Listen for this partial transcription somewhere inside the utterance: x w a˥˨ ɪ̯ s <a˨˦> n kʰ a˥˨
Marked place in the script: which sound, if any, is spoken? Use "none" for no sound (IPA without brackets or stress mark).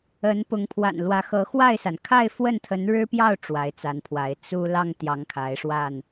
a˩